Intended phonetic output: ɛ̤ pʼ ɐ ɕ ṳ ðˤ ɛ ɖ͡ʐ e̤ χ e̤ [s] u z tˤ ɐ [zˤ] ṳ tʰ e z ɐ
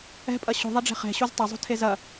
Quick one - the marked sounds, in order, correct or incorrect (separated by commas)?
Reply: incorrect, correct